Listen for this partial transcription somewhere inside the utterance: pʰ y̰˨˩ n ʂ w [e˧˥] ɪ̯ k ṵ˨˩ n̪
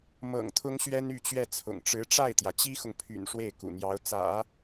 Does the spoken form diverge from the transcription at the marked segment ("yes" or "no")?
yes